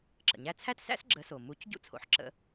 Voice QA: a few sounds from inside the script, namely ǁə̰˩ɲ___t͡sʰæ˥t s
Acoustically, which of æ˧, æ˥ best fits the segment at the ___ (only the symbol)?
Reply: æ˧